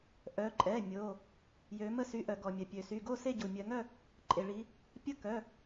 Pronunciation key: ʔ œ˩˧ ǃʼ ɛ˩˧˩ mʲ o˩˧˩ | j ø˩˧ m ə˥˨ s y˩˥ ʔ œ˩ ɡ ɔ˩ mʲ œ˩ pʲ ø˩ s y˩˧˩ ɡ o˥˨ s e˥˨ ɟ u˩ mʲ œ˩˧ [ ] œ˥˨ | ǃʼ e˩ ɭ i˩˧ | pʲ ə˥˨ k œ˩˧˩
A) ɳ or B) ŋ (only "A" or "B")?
B